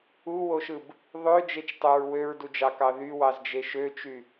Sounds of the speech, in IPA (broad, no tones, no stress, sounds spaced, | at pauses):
u w o ʃ ɯ b | ðˤ ø d͡ʒ e t͡ʃ tˤ ø ɹ w ø ɹ d u d͡ʒ ɑ k ɑ ð y w ɑ z d͡ʒ e ʃ ø t͡ʃ y